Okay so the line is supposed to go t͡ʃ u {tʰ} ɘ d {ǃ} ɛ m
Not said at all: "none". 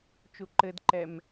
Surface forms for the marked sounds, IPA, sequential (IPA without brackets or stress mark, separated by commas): ǃ, ǃ